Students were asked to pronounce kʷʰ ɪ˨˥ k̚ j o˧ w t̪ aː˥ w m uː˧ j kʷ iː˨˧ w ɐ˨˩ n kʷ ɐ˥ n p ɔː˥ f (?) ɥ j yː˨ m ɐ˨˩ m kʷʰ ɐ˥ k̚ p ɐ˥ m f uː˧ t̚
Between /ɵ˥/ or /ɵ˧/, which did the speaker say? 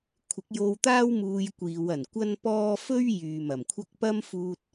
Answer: ɵ˥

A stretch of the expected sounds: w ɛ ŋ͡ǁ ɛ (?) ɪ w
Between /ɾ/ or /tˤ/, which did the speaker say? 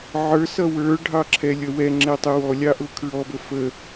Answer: tˤ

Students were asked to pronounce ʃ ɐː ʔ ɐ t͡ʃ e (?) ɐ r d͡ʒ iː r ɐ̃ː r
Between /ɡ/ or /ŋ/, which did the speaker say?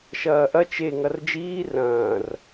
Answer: ŋ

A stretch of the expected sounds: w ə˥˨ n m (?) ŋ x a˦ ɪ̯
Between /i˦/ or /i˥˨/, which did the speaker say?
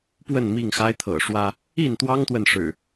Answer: i˥˨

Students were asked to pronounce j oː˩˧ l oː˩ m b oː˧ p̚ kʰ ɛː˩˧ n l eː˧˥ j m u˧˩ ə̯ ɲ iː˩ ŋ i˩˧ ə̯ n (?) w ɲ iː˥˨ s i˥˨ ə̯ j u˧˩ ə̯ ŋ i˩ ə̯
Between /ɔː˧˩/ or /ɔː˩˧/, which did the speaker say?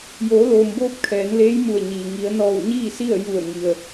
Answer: ɔː˧˩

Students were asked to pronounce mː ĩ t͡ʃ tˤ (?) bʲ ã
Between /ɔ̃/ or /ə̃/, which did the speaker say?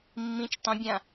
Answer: ə̃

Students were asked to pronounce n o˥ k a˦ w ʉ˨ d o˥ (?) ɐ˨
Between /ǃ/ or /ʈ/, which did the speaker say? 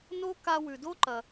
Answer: ǃ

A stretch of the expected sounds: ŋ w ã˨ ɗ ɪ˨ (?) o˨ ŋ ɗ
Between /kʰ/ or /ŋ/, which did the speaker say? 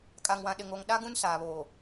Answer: ŋ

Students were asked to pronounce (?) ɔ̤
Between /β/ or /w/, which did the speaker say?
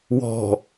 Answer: w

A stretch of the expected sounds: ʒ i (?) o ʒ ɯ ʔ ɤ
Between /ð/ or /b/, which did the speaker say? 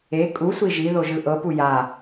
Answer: ð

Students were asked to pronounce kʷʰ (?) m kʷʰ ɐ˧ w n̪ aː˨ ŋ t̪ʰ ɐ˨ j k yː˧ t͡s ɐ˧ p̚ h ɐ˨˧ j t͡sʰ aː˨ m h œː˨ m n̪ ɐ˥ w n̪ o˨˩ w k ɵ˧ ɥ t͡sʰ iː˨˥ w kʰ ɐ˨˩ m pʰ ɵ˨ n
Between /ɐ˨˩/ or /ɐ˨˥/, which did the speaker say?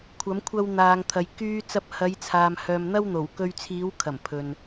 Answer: ɐ˨˥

